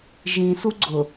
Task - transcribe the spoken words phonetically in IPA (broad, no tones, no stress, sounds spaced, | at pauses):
ʒ ĩ s u ɡ͡ǀ ʊ